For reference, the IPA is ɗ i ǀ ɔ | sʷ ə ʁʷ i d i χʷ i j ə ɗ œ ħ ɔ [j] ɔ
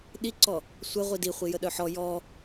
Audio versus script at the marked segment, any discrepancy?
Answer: no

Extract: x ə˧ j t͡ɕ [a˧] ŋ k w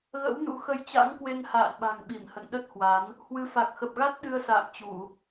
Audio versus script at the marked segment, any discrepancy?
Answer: yes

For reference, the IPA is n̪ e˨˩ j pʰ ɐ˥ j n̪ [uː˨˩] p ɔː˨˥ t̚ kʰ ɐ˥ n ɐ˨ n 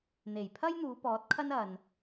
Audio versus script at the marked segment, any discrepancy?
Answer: yes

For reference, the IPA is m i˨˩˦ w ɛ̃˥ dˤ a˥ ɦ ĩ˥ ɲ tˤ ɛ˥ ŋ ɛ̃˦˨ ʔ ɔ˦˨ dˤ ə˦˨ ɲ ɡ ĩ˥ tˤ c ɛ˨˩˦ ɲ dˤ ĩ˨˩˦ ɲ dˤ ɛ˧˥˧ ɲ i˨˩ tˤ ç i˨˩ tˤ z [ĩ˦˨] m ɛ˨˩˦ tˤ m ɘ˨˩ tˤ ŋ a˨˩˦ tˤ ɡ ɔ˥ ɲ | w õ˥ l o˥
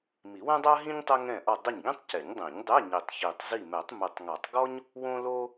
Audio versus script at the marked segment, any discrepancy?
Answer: yes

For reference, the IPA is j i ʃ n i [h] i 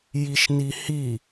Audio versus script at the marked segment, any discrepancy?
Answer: no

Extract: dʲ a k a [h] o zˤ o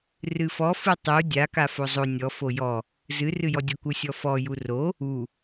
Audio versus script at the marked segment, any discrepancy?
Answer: yes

